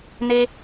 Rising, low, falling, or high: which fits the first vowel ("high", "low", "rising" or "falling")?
high